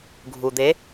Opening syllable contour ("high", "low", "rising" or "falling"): low